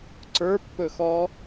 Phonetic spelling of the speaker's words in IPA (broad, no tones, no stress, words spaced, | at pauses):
ǀə˞pːɵxɔ